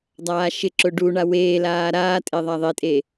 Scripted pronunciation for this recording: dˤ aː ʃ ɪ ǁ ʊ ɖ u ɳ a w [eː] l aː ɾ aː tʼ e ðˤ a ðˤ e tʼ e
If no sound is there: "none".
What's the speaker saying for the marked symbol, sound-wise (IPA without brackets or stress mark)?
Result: eː